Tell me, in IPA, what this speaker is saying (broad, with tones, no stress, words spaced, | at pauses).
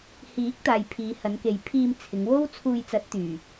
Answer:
hiː˨˥k̚t̪aː˨j pʰiː˨˧hɐ˨˧nke˨j pʰiː˧mt͡sʰɪ˨˧ŋ wo˥w t͡sʰuː˧jt͡sɐ˨˥t̚ t̪yː˨˩